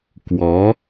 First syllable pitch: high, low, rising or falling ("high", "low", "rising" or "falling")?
rising